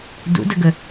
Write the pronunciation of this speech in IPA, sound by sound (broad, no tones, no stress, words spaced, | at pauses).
dṵdəɡə